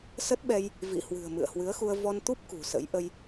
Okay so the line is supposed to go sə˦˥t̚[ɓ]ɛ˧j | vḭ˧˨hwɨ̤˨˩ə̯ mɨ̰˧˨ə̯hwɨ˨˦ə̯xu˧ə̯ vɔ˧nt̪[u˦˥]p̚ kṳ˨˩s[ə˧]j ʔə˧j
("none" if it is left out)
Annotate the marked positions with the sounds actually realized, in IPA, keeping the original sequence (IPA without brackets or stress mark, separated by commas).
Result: ɓ, u˦˥, ə̰˧˥